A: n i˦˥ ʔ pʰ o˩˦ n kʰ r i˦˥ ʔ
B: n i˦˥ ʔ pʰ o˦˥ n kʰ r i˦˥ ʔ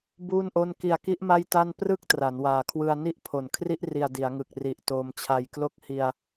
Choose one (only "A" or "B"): A